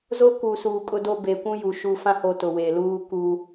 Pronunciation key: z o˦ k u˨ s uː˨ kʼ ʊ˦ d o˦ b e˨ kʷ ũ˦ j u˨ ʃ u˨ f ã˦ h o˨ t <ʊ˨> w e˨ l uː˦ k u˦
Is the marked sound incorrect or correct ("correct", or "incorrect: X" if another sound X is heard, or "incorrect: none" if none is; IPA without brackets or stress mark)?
correct